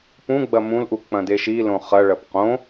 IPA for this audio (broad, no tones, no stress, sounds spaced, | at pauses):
p ũ ɡ͡b ɐ m ũ l ʔ u k͡p ɐ̃ d e ʃ i l õ χ ɐ ɭ ɐ p q õ